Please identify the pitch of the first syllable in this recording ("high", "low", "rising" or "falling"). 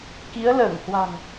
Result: rising